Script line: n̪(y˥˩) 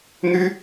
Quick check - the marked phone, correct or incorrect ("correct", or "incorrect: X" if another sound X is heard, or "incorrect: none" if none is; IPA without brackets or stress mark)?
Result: incorrect: y˥